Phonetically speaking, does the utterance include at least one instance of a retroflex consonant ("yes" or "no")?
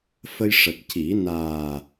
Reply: yes